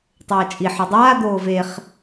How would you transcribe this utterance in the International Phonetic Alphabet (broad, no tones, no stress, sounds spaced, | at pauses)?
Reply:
tˤ ɤː t͡ʃʼ i ħ ɤ dˤ aː d̪ oː v e χ